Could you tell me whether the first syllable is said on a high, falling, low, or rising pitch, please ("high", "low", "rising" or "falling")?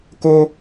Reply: high